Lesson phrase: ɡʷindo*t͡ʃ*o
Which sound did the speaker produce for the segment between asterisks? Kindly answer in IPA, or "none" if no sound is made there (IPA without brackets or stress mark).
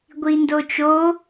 t͡ʃ